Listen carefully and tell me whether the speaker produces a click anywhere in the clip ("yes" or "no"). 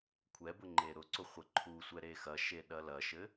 yes